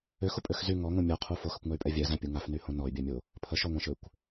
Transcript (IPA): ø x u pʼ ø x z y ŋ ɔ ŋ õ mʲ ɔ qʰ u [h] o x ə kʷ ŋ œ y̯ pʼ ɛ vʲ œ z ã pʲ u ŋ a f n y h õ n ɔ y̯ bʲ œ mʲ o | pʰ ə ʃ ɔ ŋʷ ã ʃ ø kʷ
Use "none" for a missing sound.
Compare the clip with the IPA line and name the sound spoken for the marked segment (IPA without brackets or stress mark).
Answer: f